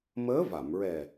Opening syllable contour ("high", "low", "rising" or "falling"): rising